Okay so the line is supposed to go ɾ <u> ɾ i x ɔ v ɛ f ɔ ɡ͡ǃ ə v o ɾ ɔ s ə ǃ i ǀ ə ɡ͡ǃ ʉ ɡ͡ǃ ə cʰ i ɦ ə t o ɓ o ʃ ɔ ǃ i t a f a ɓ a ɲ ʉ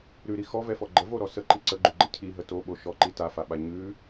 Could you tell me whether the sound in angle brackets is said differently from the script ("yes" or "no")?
yes